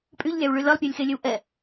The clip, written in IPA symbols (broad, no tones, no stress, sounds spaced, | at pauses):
pʼ y ʎ lʲ a w ɭ y l ə lˠ pʲ œ lʲ x e lʲ ø w ʔ ɛ